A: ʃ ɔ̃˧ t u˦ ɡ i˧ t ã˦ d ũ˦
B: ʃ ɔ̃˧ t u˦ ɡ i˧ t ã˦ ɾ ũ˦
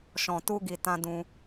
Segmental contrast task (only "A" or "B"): A